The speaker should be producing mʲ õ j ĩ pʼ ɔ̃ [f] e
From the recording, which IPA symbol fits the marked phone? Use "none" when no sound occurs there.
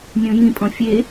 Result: fʲ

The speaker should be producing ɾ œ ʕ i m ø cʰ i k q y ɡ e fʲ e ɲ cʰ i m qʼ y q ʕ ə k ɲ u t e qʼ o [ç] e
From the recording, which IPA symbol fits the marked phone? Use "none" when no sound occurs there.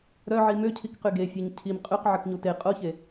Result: ç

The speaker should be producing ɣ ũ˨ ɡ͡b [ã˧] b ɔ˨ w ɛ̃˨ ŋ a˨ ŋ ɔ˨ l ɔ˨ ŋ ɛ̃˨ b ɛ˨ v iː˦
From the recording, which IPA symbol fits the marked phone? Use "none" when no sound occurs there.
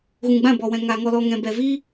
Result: ã˦˨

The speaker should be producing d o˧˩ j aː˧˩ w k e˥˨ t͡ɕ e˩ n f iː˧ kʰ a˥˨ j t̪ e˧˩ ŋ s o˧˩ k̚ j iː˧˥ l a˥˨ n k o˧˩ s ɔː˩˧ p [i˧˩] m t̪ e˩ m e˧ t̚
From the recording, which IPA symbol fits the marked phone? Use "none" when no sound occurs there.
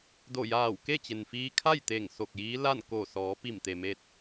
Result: i˧˩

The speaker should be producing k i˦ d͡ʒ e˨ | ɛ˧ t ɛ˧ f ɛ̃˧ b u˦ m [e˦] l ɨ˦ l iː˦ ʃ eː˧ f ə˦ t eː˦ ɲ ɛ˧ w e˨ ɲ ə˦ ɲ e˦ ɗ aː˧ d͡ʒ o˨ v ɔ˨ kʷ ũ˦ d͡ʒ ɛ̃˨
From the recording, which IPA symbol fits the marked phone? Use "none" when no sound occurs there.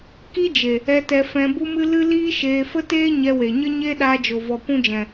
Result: ɨ˦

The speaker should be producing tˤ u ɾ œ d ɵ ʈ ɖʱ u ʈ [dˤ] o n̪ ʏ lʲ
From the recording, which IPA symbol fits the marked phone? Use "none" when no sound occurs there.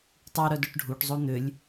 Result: zˤ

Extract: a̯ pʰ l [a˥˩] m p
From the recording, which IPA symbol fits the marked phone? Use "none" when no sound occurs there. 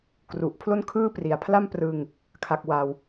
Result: a˥˩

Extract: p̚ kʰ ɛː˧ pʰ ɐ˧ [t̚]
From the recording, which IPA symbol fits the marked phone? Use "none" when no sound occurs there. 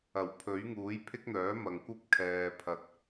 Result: t̚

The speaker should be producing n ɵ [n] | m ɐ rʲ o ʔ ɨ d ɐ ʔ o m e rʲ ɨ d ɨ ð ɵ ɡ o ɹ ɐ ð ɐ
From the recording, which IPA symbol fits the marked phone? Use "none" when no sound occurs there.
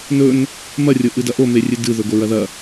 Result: n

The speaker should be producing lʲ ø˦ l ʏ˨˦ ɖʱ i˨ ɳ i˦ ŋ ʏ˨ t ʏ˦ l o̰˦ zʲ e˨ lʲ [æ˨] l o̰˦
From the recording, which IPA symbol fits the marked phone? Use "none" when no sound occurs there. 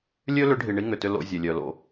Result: œ˨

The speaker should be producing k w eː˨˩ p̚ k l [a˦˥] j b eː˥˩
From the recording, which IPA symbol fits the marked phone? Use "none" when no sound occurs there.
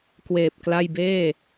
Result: a˥˩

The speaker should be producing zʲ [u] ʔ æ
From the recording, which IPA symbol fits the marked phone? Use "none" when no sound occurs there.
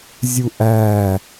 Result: u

